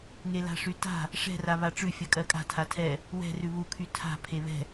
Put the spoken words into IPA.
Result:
ŋela̤ʂyta̤ | ʂɛ̤ra βaʈ͡ʂʉ fʲɜkʼɜkʼa̤tʰa tʰɛ | wɛ̤ rʉβukʰy tʰa̤ pʰeβɛ̤

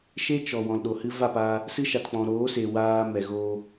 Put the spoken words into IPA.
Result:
ʃe˦t͡ʃɔ˨ wɔ̃˨lɗo˨hɨ˦ va˦˨paː˧ | sɨ˦ʃa˨tk͡pɔ̃˨ ɾoː˨˦se˨ waː˦ mɛ˨ɣoː˦

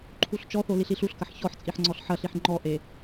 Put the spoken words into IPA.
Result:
ǃʰuɬt͡ʃɔθo liɬiɬuɬkɐħ çɔħ t͡sʼiħŋ͡ǀɔɬħɐɬiħ ŋ͡ǃɔʔe

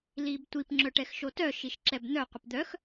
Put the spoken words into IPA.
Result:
libtʷip ŋ͡ǁœʈɛxʃotœ ʃiʃǁɛbn̪œ qʷɪpd̪œx

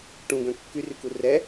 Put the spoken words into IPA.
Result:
ʈũɡœ̃ kːyryku rɛ

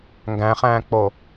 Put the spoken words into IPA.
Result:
ŋɡæ̃χæ̃ːk͡po

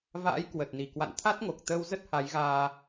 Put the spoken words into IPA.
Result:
va̰ː˧˥j kwə˨˩t̚ni˨˩ kwa̰˧˨nt̪ʰa˦˥t̚ŋo˨˩k̚t̪əː˧w zə˦˥t̚ha˨˦jɣaː˧

